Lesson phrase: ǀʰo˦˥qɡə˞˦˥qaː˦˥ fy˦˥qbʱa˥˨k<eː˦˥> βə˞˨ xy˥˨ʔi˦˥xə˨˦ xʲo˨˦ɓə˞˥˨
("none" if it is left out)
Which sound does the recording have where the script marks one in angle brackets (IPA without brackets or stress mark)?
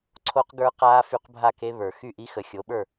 e˦˥